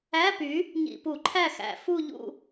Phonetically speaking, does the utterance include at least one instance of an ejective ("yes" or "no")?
no